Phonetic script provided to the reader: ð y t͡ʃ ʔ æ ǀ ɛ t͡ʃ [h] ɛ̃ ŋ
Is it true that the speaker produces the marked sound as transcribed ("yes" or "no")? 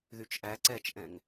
no